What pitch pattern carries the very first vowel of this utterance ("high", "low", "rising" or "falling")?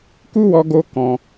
high